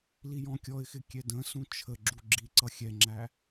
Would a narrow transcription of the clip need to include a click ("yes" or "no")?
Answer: yes